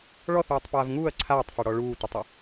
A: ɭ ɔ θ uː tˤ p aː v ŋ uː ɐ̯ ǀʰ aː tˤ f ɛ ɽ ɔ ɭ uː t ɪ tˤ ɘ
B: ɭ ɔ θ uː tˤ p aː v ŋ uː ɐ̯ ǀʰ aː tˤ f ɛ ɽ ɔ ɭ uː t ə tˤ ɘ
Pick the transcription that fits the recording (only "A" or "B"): A